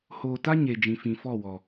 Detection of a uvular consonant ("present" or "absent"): absent